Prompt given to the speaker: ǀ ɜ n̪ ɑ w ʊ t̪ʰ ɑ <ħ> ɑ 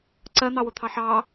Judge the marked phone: correct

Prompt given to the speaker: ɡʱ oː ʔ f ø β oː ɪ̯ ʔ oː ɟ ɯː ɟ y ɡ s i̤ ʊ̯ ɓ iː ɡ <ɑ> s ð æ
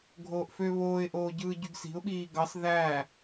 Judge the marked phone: correct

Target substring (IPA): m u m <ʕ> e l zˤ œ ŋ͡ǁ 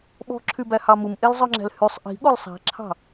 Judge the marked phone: incorrect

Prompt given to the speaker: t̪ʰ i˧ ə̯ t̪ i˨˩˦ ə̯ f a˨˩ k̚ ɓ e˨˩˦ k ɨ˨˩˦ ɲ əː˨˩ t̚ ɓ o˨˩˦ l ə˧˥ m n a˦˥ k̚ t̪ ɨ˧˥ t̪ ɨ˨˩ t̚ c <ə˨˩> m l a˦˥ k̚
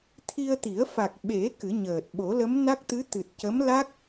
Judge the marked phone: incorrect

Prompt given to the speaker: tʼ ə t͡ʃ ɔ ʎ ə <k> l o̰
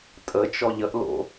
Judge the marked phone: incorrect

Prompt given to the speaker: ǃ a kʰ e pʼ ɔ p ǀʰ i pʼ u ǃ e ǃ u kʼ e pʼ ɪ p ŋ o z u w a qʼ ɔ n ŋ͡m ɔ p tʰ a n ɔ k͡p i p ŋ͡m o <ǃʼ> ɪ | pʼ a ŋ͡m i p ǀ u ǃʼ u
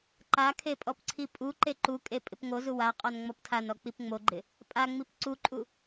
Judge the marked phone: incorrect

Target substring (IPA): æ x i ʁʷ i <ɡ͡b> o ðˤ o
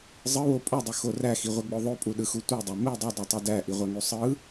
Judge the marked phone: correct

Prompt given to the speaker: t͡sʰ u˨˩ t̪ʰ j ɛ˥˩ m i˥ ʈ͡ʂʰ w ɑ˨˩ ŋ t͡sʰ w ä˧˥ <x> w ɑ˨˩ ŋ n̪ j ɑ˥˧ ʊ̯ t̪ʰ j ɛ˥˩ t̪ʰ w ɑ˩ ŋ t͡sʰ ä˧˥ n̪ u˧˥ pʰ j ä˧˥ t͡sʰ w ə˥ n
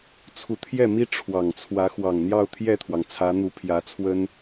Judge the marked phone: correct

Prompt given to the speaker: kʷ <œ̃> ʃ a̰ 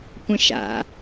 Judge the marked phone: incorrect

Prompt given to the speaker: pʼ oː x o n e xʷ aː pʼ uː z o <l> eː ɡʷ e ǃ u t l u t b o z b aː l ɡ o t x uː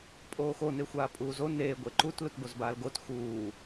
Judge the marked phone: incorrect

